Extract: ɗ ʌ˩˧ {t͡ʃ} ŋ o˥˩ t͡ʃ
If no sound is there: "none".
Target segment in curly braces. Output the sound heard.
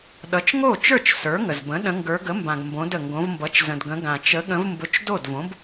t͡ʃ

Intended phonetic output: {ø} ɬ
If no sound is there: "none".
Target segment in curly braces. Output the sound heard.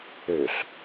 ø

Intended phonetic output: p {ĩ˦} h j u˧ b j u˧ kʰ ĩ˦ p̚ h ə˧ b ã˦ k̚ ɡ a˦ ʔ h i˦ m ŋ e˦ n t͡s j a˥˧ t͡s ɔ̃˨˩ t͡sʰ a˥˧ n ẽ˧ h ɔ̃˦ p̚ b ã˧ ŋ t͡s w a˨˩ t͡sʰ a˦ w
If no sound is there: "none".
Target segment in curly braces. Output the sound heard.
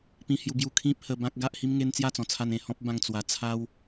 ĩ˧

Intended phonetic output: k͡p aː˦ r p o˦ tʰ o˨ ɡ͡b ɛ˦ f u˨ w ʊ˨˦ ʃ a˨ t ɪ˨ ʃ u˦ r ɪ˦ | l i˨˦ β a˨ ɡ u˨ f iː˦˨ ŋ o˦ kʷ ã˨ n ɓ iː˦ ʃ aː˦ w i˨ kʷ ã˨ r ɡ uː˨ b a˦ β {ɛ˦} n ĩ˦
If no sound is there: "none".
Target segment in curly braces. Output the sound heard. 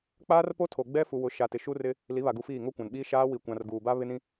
ɪ˦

